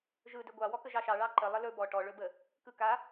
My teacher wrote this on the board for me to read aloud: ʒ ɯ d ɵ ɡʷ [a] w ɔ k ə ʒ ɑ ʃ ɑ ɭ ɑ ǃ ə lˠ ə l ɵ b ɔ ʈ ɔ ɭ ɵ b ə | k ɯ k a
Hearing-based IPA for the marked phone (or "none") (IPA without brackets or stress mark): ɑ